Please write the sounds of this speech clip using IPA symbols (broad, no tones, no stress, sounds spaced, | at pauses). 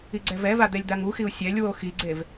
i ɡ͡ǀ ɛ v ɛ v a d̪ ɛ lʲ d̪ a ŋ u x i u̯ sʲ ɛ lʲ w o x i ɡ͡ǀ e v